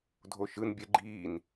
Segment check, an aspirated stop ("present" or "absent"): absent